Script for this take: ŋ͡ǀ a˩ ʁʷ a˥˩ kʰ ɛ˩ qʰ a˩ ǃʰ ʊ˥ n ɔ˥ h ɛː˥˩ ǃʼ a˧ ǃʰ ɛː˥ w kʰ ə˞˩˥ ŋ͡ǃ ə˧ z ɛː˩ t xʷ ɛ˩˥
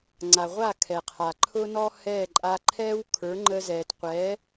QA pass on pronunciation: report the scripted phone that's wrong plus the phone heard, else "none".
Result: xʷ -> qʷ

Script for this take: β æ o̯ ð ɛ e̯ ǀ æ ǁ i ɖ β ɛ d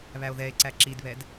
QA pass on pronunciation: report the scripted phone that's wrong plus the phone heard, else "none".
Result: ɖ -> d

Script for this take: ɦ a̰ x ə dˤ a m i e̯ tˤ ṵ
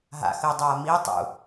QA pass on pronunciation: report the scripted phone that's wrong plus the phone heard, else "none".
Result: none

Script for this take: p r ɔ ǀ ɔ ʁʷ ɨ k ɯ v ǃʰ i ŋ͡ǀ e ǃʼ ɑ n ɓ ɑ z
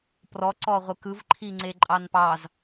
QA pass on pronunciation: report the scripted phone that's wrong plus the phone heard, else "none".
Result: ɓ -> p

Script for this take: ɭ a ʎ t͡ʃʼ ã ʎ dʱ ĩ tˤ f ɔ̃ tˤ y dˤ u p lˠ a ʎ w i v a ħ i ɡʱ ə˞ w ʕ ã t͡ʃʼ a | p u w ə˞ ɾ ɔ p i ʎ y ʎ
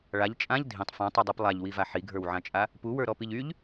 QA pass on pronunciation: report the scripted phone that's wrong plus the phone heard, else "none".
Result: none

